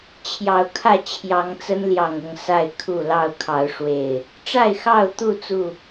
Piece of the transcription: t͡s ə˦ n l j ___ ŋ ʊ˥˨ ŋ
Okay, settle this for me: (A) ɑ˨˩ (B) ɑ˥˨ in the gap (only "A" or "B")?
A